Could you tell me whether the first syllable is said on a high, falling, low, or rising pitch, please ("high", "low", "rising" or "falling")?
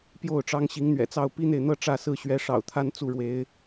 falling